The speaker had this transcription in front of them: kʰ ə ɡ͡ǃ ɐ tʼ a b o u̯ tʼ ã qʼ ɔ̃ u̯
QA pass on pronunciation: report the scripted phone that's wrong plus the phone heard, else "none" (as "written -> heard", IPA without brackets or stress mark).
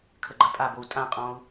none